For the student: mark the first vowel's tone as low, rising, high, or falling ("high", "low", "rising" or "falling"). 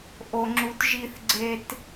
low